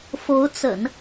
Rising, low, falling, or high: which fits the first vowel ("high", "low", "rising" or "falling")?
rising